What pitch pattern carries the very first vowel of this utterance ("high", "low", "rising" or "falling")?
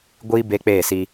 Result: high